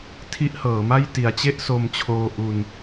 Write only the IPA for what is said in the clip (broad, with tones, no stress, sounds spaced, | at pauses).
tʰ i˦˥ ʔ h ɤː˩˦ m a˥˩ j t i˩˦ a̯ t͡ɕ e˥˩ ʔ s o˧ m t͡ɕʰ oː˧ ʔ u˧ n